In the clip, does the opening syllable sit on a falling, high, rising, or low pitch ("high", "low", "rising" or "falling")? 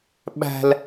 high